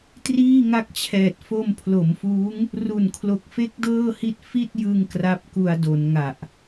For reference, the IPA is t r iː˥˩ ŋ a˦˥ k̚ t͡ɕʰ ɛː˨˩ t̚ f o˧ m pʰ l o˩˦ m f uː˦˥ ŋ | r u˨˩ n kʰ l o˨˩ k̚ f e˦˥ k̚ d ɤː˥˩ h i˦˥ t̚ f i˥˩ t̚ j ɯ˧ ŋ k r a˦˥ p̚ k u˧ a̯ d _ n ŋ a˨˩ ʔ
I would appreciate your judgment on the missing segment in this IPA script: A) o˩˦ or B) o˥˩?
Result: A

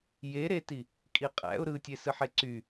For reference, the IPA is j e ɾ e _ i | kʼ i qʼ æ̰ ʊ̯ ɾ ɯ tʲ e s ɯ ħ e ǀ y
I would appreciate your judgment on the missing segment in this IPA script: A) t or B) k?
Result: A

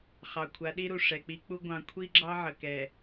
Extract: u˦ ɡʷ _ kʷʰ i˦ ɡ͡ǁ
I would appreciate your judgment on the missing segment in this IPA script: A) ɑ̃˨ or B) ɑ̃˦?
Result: A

